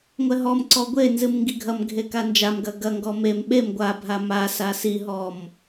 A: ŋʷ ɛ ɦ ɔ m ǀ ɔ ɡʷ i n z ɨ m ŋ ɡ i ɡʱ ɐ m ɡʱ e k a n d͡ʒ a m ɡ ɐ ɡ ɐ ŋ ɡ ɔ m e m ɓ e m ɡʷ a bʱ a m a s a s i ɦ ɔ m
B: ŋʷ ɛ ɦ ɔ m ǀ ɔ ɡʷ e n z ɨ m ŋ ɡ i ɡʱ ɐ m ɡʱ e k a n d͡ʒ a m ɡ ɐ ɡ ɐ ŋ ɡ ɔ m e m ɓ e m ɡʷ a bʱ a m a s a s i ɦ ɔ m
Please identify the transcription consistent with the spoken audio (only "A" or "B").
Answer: B